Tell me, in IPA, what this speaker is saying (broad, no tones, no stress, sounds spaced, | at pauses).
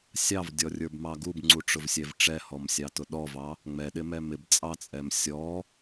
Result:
sʲ ɑ v dʲ ɔ rʲ ə˞ b m ɑ ɡ u b ŋ͡ǀ u ʈ͡ʂ ʊ v sʲ ɛ v ʈ͡ʂ ɛ h ɔ m sʲ ɑ t ʊ ɗ ɔ v ɑ | ŋ͡m ɛ ɗ ɪ m ɛ m ɪ b t͡sʼ ɑ t͡sʼ ɛ m sʲ ɔ